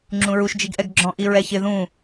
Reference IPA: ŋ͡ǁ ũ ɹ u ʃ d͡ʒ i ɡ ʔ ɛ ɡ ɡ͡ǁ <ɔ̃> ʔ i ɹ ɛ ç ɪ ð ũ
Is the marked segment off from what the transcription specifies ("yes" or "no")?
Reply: no